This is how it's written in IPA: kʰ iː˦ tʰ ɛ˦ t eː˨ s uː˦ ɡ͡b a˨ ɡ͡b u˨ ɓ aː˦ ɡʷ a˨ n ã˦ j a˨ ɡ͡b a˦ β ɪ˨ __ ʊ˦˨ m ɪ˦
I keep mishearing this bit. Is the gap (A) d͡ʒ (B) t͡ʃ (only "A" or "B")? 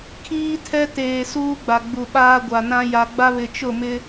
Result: B